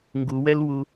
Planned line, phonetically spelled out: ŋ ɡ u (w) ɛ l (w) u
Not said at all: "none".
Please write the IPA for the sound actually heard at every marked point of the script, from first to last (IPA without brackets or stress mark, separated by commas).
w, w